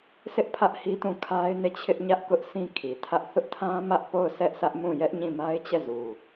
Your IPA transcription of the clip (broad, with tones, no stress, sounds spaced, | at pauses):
s ɪ˦ ʔ pʰ ä˦ ʔ h i˦ t ũ˦˨ kʰ a˦ ɪ̯ n e˦˨ t͡ɕʰ ɪ˦ ʔ ɲ ä˦ ʔ k ʊ˦ ʔ sʰ ĩ˦ kʰ i˨ tʰ ä˦ ʔ θ ʊ˦ ʔ tʰ ã˦ m ä˦ ʔ p o˦˨ ʊ̯ sʰ ɛ˦ ʔ sʰ ä˦ ʔ m ũ˦˨ j ɛ˦ ʔ ɲ ĩ˦˨ m a˦ ɪ̯ t͡ɕ ɛ˦˨ z u˨